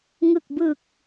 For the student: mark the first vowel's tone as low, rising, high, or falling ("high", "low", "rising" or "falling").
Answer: low